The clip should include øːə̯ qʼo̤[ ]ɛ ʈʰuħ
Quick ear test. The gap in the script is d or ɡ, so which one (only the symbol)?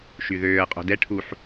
d